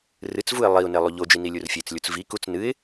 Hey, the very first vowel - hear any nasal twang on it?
no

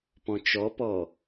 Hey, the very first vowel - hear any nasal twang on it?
yes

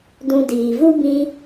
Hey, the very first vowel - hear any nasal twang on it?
yes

